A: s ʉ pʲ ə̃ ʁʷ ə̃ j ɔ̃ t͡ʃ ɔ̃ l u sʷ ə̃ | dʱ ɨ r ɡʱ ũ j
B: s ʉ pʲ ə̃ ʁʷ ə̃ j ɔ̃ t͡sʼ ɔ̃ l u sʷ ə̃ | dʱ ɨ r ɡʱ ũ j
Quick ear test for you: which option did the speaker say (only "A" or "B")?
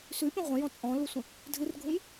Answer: B